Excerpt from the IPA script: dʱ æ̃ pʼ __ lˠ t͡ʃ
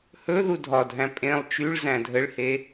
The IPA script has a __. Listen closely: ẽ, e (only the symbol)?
ẽ